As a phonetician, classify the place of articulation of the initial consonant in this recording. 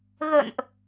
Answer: velar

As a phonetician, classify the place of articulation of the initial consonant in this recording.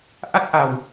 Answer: glottal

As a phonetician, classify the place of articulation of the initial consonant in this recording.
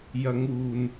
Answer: palatal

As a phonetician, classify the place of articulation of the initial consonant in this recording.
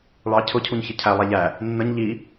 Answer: retroflex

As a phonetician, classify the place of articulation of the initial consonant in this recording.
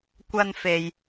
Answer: velar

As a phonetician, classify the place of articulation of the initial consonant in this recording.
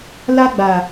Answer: alveolar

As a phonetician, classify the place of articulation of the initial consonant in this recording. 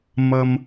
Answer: labial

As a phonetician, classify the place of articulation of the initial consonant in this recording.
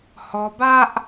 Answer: glottal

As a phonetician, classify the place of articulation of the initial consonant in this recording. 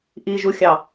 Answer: glottal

